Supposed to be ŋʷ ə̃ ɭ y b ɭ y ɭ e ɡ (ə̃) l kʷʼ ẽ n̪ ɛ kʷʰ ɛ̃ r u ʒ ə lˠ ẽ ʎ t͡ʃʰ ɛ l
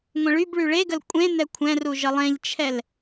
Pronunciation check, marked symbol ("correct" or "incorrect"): incorrect